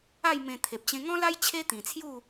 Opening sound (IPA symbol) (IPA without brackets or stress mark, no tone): a